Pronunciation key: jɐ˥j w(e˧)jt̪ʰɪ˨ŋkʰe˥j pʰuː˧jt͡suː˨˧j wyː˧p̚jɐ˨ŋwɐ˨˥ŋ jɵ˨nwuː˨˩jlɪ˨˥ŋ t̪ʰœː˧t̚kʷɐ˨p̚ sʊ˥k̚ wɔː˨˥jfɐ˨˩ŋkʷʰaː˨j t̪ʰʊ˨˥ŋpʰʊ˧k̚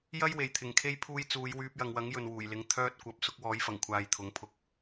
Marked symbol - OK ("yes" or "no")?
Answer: no